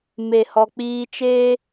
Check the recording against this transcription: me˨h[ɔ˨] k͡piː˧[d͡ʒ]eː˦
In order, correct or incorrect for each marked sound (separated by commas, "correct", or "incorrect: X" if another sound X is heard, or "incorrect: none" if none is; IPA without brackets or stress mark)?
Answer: correct, incorrect: t͡ʃ